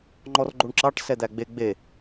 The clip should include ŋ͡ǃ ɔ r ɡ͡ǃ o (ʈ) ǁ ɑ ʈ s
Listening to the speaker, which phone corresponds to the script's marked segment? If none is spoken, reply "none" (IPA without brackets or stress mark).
ɳ